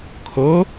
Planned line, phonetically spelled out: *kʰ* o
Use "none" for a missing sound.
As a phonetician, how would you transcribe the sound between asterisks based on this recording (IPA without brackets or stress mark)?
kʰ